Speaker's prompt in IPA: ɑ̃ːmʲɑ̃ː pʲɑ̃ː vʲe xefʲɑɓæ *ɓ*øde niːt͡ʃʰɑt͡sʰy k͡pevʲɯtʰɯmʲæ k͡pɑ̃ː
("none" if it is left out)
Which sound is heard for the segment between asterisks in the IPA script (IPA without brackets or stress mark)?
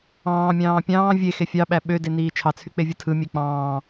ɓ